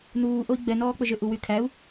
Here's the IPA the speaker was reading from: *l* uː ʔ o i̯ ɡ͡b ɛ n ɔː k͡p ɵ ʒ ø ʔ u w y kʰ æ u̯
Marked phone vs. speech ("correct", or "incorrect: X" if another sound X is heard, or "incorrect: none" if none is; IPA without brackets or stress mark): incorrect: n